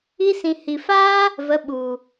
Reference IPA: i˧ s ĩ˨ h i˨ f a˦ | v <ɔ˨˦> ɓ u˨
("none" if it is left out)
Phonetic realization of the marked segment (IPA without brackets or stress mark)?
ə˨˦